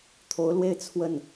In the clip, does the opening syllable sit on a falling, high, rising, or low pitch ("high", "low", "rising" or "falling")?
rising